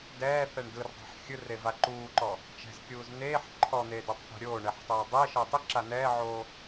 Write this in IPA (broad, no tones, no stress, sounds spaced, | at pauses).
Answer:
d ɛː θ ɛ ɳ d ɯ r dˤ ɛ̤ ħ xʲ ɯ r e v a ǃ uː ǃ ɔ | t͡ʃ ɛ̤ z kʲ uː z n̪ eː ħ ǃʰ ɔ n̪ eː d u tˤ θ a̤ ɾʲ oː ɳ ɛ ħ tˤ oː dˤ e ʃ ɤ tˤ ɯ ǁ a n̪ ɛː ʕ oː